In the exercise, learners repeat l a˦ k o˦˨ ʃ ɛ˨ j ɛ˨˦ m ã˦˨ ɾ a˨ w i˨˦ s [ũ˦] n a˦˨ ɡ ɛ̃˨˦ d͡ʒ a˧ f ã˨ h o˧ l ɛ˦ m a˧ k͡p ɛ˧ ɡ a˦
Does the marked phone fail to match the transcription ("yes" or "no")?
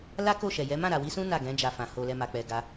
no